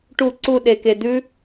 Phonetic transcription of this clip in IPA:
ʈ u˨˩ ǀ u˨˩ ɗ e˨˩ k e˨˩ d̪ ʉ˦˥

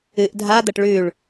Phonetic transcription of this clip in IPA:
ɨ ʔ dʱ a d̪ ɐ ʈ ɭ ʉ ɭ

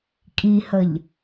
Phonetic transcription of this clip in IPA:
kʼ i h ə ʎ

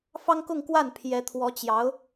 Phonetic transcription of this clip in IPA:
f ɑ˥ ŋ k ʊ˥˧ ŋ k w a˥˩ n pʰ j ɛ˧˥ t̪ʰ w ɔ˧˥ t͡ɕ j ɑ˧˥ ʊ̯

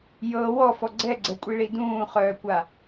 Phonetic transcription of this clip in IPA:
j ɤ w ɔ f ɔ ɡ͡ǀ ɛ ɡ͡ǀ ɛ kʷʼ i ɭ i d ũː χ œː kʷ a

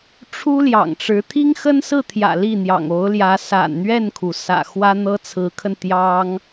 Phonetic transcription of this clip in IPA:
ʈ͡ʂʰ u˥ l j ɑ̰˨˩ ŋ ʈ͡ʂ ɻ̩˧˥ t̪ʰ i˥ ŋ x ə˥ n s ɹ̩˥˩ t̪ʰ j ä̰˨˩ l i˥˩ n̪ j ɑ̰˨˩ ŋ o˧˥ ʊ̯ l j ä˧˥ s a̰˨˩ n n̪ ɥ ɛ˥˩ n kʰ u˩ s ä̰˨˩ x w ä˥ n̪ ɤ˥ t͡sʰ ɹ̩˧˥ kʰ ə˧ n t̪ j ɑ˥ ŋ

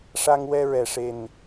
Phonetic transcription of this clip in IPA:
ʂ a˧ ŋ w ɛ˧ ɹ ɛ˨˩ ʂ e˨˩ n

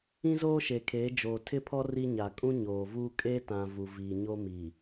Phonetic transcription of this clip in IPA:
ĩ˦ z oː˦ ʃ e˨ kʰ eː˨˦ d͡ʒ oː˨ tʰ ɪ˦˨ pʰ ɔ˦ r i˦ ɲ a˨ kʼ ũ˦ ɲ oː˨ v uː˦ kʼ e˦ t ã˨ v u˨ v iː˨ ɲ o˦ m iː˨

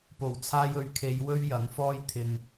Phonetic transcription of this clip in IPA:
p o˨˩ w t͡sʰ aː˧ j ɵ˨ ɥ kʰ e˨˧ j w ɵ˥ ɥ j ɐ˨˥ ŋ f ɔː˥ j t̪ʰ ɪ˧ ŋ

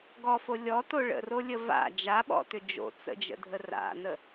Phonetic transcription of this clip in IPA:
ɡ ɔ f o lʲ ɔ t o ɭ ə̰ r o lʲ ə v a̰ d͡ʒ a ɓ ɔ̰ t ʏ d͡ʒ o̰ t͡s ə̰ d͡ʒ ə̰ dʱ ə r a̰ n ə

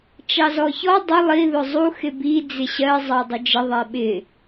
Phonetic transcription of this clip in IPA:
t͡ʃ ɑ z ɔ ç ɔ dˤ ʊ lˠ i ð ʊ zˤ u x ɪ b i d͡z ɪ ɕ ɜ zˤ ɑ dˤ ʊ d͡ʒ ə ðˤ ɛ ɓ ɪ

